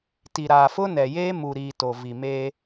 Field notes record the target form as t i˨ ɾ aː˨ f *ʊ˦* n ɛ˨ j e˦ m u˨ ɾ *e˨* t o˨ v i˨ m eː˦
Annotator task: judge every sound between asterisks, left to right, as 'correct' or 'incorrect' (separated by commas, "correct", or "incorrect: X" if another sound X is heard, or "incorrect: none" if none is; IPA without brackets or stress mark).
correct, incorrect: i˨